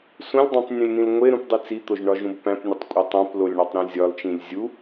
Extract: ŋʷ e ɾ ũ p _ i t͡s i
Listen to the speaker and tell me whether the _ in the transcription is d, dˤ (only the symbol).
dˤ